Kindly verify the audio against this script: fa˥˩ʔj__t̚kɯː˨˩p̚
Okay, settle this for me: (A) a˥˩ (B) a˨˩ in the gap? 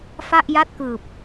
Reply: A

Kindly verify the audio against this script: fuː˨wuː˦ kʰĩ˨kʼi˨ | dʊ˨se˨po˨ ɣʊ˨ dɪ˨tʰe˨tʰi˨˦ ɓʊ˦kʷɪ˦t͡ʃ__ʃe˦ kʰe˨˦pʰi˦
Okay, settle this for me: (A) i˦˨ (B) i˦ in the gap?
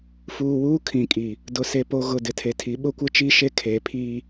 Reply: B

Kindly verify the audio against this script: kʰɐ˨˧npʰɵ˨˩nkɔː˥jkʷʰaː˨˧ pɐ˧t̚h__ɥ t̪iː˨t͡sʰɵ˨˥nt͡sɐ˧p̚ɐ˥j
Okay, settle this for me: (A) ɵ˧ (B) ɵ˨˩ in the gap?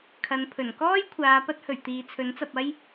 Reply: B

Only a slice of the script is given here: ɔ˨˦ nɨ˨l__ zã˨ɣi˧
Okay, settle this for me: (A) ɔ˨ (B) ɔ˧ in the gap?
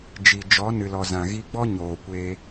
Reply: A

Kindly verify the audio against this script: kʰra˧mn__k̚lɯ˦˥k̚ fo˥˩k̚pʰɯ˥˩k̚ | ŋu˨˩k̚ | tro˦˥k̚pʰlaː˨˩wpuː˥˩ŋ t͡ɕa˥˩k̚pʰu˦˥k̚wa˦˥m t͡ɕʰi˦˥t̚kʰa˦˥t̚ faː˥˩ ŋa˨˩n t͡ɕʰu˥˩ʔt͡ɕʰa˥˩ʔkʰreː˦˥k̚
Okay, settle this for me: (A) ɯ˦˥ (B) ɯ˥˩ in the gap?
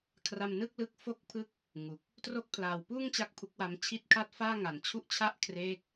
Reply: B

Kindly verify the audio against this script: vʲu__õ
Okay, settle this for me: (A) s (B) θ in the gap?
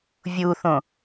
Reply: B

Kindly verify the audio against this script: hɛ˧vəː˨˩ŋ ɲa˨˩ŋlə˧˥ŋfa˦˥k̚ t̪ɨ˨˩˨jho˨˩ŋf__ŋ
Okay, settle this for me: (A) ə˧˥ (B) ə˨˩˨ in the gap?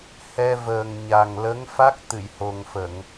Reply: B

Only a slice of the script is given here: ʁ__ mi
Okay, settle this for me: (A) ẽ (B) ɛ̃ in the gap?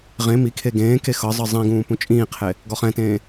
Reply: A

